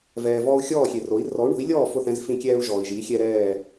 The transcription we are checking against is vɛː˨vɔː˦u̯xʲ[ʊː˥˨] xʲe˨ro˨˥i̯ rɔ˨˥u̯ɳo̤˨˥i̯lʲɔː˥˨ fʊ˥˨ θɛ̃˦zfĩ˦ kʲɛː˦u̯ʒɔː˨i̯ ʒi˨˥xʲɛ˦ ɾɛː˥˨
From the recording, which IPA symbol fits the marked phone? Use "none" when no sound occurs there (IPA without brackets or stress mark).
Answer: ɔː˥˨